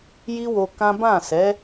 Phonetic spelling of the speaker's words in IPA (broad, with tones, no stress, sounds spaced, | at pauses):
j i˦ w o˧ k ã˦ b ã˦˨ s ɛ˨˦